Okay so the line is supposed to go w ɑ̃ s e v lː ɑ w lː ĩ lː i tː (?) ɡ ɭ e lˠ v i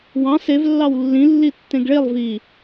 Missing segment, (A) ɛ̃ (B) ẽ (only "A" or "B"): B